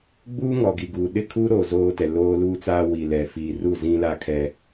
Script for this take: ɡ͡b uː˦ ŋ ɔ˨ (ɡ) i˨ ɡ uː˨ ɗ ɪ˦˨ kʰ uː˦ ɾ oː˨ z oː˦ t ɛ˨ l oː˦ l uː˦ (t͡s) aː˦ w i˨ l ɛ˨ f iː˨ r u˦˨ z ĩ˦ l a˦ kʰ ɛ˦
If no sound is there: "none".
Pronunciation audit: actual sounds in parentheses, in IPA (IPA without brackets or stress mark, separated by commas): ɡ, t͡s